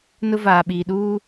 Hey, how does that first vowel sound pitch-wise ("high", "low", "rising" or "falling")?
high